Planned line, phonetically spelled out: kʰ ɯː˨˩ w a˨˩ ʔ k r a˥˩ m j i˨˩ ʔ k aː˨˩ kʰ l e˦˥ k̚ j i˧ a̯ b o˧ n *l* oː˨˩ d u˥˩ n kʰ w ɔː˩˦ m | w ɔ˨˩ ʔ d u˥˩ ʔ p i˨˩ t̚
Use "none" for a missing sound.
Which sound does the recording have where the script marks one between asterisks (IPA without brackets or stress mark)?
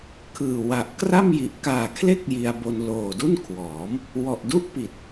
l